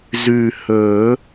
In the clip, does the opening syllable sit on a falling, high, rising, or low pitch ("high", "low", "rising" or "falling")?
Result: low